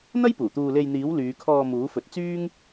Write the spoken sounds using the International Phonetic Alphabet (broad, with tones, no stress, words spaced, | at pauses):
n̪ɐ˥j puː˨˩t̪uː˧ le˧jn̪iː˨˥w lyː˨˧kʰɔː˧ muː˨˥fɵ˨˥t̚ t͡syː˥ŋ